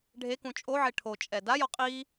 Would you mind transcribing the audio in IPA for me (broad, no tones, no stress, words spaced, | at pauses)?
ɖʱekũ t͡ʃʼoʕe ʈʰot͡ʃʼɛ dajɔ qʼi